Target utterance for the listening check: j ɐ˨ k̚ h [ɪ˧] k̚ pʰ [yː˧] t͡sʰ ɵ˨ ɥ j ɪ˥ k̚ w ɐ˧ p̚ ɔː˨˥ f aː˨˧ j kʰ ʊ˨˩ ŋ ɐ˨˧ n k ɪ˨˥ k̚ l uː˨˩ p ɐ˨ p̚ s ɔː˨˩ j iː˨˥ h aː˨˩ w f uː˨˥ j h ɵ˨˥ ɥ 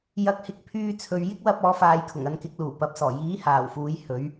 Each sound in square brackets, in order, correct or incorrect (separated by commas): incorrect, correct